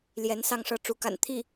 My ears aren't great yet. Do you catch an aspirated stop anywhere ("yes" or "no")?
yes